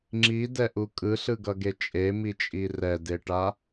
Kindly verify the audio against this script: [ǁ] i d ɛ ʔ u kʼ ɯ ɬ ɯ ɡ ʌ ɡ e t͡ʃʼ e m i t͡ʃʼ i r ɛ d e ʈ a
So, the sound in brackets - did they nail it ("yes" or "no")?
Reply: no